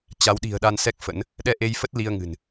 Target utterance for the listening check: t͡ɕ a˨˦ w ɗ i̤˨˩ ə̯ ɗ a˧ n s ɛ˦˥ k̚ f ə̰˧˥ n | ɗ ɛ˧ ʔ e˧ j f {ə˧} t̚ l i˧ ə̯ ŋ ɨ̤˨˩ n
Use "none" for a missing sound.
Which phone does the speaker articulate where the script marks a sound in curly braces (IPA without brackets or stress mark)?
ə˦˥